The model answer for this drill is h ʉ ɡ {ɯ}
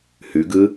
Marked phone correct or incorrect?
correct